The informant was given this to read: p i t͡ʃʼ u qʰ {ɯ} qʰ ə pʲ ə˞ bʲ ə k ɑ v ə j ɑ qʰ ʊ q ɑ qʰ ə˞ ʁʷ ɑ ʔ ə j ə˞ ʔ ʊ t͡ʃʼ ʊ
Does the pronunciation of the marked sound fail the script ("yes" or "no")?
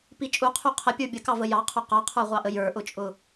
yes